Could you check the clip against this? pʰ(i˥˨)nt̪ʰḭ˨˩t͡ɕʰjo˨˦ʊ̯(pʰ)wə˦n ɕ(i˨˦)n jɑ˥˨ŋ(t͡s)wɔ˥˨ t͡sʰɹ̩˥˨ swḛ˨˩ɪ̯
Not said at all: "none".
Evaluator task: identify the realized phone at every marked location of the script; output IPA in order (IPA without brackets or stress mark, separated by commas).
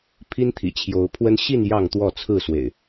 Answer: i˦, pʰ, i˥˨, t̪